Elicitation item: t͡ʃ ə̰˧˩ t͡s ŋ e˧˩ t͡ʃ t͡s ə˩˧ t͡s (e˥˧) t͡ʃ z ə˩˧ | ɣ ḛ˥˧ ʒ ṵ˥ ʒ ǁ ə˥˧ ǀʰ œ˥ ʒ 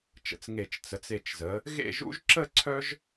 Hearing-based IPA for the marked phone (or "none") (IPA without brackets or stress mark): e˧˩